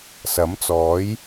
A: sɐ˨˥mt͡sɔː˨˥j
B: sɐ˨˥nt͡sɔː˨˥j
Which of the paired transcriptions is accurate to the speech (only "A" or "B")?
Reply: A